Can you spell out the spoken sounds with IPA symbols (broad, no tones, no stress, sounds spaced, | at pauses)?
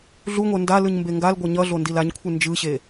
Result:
ɮ u ŋʷ ɛ n d a l ɯ ɲ m b e ŋ ɡ a l ɡʷ ʌ ɲ ʌ ɮ o n d i l a ɲ kʷʰ ɯ n d͡ʒ ɯ ɕ e